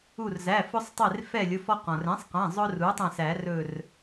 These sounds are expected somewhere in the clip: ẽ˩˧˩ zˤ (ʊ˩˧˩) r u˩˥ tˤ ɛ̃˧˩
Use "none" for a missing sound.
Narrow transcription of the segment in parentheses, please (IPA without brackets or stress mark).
ʊ˧